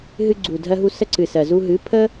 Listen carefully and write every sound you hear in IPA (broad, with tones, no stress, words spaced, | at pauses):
ɦɨ˧ɡ͡ǀu˨dʱɜ˧ɦu˧ sə˧ǀɨ˨sɜ˨ zu˧ɦɨ˨˦ pʰə˦